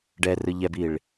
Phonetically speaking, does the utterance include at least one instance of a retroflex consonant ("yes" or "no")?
yes